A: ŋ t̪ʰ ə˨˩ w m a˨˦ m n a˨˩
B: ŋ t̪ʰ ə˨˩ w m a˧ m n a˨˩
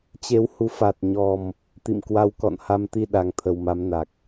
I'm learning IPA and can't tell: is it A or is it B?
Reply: A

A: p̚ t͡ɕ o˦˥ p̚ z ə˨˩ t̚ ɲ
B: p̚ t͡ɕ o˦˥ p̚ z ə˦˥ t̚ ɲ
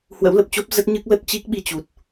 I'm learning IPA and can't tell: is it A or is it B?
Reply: B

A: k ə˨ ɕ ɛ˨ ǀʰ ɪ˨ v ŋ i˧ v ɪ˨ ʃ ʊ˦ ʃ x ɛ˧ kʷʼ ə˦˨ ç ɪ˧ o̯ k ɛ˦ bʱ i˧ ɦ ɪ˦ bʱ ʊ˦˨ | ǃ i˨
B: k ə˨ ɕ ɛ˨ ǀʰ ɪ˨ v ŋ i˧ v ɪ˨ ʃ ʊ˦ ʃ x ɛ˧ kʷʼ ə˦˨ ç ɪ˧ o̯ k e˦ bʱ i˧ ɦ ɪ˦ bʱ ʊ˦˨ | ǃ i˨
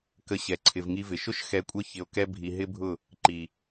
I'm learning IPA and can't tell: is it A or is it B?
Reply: A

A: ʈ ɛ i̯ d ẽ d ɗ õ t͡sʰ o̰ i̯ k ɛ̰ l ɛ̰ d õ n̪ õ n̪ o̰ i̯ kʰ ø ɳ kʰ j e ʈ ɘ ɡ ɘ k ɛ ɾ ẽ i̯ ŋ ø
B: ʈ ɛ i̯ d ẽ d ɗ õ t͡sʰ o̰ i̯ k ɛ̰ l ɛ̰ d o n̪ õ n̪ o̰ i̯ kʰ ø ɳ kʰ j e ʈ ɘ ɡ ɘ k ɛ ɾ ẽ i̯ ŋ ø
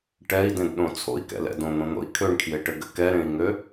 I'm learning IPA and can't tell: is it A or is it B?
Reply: A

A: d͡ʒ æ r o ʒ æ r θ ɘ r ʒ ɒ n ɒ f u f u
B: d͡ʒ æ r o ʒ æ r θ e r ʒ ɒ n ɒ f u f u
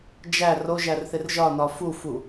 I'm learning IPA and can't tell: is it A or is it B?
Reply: B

